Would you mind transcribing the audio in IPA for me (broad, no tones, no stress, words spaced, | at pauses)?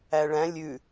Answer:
æɭæ̃ lʲʉ